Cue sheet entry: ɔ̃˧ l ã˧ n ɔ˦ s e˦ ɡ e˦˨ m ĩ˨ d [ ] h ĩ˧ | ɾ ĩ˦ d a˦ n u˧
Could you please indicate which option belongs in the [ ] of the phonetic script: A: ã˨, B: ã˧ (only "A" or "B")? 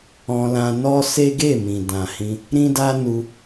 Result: A